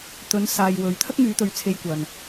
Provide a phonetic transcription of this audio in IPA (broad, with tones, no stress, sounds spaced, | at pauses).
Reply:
t̪ ɵ˨˧ n s aː˨ j w ɵ˨˥ ɥ t̪ʰ ɐ˥ k̚ ŋ yː˨˧ t̪ ɵ˨˧ ɥ t͡sʰ e˧ j kʷ ɐ˨ n